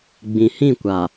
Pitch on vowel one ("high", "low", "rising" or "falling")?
low